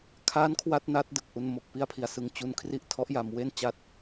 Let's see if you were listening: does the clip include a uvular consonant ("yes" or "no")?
no